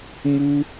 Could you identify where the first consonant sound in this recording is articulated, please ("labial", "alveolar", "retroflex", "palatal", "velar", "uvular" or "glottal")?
labial